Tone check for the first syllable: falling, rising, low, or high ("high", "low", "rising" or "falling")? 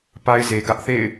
high